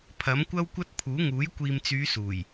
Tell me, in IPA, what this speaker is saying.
pʰ ɐ˨˥ m kʷ ɐ˥ w kʷ ɐ˥ t̚ pʰ uː˨˥ ŋ uː˨˥ j kʷ iː˨ m t͡s yː˨˧ s uː˨˩ j

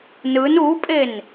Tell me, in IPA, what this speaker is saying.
n ɯ n u pʼ e n

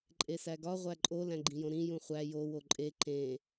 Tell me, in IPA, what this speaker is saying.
ǃʼ e s æ ɡ ɒ ʁʷ æ ǃʼ o l æ̃ ɡ͡ǃ ĩ j õ ɾ ĩ j ũ χʷ æ j o w o ǃʼ e ǃ ẽ

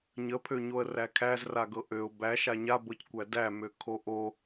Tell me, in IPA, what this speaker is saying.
ɲ ə pʰ ø ɲ o ə̯ r æ kʰ æ z r a ɡ ɤ ʔ ø ʊ̯ b æ ʃ a ɲ a b ɤ c kʷ æ d æ m ø kʰ o ʔ o

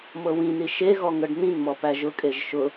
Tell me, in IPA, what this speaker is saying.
m ɤ w ĩ n i ʃ e ɣ ɔ ŋ ɤ ɖ n̪ ĩ n m ɔ p æ ʒ ʊ kʼ e ʒ ʃ ʊ

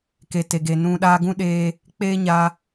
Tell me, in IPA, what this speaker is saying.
k e˨ t e˨ ɡ e˨ n ũ˧ ɗ aː˧ ɡ ũ˦ ɗ eː˧ | k͡p eː˦ ɲ aː˧

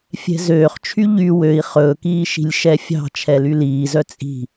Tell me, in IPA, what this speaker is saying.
fʲ ɛ̤ z øː χ t͡ʃʰ y ʎ y w ø i̯ χ ɵː k iː ʃ i̤ lʲ ʃ ɛ fʲ ɑ̤ t͡ʃʰ ɛ l y l iː z œ t͡sʼ i̤

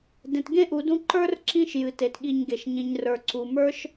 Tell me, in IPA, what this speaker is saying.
d ẽ˨ t ɡ ẽ˥ ʔ u˨ d ũ˦ ǃ ə˞˥ r ǁ ĩ˦ ʃ j ɨ˩ t e˩ t ɠ i˨ ɲ ɡ e˩ ʃ ɲ ĩ˨ ɲ r ə˞˨ ǀ u˨ m ə˞˥ ʃ

